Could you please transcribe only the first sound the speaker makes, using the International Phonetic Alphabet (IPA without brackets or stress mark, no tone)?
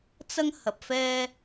t͡s